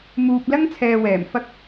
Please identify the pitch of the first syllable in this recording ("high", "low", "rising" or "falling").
low